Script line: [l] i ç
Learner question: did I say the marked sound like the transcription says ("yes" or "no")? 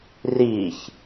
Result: no